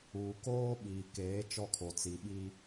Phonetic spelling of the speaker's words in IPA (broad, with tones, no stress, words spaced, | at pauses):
uː˨koː˦ ɓiː˨keː˨˦ t͡ʃɔ˦kʰo˨t͡si˨ɓi˦